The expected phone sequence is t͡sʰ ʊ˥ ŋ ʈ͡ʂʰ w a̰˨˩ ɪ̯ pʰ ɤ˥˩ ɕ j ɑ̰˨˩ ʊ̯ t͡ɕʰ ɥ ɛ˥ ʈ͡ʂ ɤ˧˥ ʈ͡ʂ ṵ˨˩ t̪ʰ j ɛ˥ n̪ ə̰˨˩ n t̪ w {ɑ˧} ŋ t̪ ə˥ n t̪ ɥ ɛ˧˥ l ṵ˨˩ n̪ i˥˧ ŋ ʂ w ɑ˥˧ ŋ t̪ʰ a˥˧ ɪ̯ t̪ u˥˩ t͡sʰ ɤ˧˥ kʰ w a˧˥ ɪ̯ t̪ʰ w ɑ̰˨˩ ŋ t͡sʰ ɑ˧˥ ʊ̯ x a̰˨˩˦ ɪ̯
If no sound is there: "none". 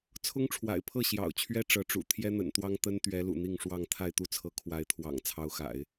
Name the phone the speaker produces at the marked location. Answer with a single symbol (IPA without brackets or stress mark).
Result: ɑ˥